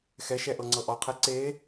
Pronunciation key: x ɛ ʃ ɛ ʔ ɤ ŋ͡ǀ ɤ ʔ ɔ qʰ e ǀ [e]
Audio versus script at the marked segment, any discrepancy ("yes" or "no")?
no